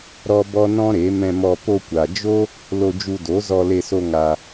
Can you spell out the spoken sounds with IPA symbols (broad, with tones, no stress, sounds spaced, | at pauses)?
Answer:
ɾ ɔ˦ b ɔ˦ n ɔ̃˦ ɾ e˨˦ m ɛ̃˧ m ɔ˧ p o˧ kʷ a˨ d͡ʒ o˦ | l o˧ d͡ʒ u˧ d o˨˦ z ɔ˧ l e˧ s o˧ ŋ a˧